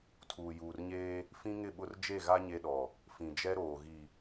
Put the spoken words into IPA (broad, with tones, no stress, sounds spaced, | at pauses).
tʰ uː˨ j uː˨ r ɲ eː˦ | f ĩ˦ ŋ ɪ˦˨ ɓ ʊ˦ r d͡ʒ e˦˨ ɣ a˦ ɲ e˦ ɗ ɔ˨ | f ĩ˨ d͡ʒ ɛ˦ ɾ oː˨ ɣ i˨